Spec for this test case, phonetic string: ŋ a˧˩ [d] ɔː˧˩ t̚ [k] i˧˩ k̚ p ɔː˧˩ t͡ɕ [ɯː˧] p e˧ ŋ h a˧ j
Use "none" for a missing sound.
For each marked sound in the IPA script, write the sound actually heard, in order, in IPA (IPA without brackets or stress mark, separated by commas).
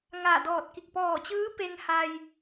d, k, ɯː˧˥